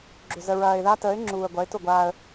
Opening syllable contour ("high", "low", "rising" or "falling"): low